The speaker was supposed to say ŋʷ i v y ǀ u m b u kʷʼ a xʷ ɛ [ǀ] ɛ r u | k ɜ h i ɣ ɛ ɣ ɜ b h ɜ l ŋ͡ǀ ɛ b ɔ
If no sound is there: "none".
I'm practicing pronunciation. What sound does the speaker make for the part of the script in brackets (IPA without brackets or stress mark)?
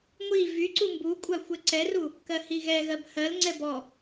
ǀ